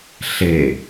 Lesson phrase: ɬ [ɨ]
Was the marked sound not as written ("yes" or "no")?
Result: yes